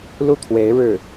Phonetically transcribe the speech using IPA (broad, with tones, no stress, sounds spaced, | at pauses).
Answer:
l u˥˩ t̪ʰ w e˧˥ ɪ̯ ɻ ɻ̩˥˩